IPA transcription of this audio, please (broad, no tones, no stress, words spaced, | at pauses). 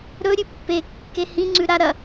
ɾɵɾʲʉ pːe kːehĩ ŋ͡ǀʉɾa ɾɐ